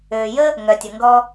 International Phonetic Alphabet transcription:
øː˩jə˥ | ŋœ˩tʲə˩ŋɡɔ˧

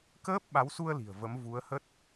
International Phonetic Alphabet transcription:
kəː˦˥p̚ɓa˨˦wsu˧ə̯ li̤˨˩ə̯və˨˦m vu˨˦ə̯hə˦˥t̚

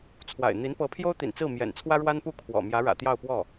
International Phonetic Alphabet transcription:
t͡sʰwa̰˨˩ɪ̯n̪i˧˥n pɤ˧˥pʰjo˥ʊ̯ t̪ḭ˨˩nt͡sɹ̩˥˩mjɛ̰˨˩nt͡sʰwä˥ ɻwa˥npu˥˩kʰwɔ̰˨˩ mjä˧˥ɻä̰˨˩t̪jɑ˥˧ʊ̯pwɔ˥˩

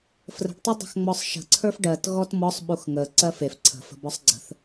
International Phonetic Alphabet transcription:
frə̤ɖtˤɛ dˤə̤xŋ͡mɔsˤʃə̤ ǀʰə˞fɖɜt ɣɔtmɔsˤɓux ŋə ǀɜfef ǀʰə̤ fə̤bɔsˤɡ͡ǀə̤θ

